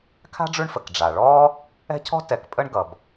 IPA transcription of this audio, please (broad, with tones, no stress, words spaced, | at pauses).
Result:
kʰa̤˥ɖ͡ʐʉ˦ɳfə˩k ɖ͡ʐa˩ɭɔː˥ | ɛ̤˥cʰɔ̤˥ tɛ˨k pʼə˥ɳ ɡʌ˩b